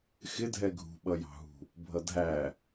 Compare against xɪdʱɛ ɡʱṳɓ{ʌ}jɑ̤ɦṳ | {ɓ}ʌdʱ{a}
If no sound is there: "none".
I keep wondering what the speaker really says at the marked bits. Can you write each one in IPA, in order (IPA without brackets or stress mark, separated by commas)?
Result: ʌ, bʱ, æ